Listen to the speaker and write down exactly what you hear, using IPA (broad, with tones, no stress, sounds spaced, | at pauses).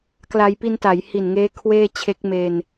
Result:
k l a˧ j p i˧ n t a˩˦ j h i˨˩ n ŋ eː˦˥ kʰ w eː˥˩ t͡ɕʰ e˦˥ k̚ m e˧ n